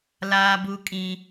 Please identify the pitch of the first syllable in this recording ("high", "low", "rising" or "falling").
high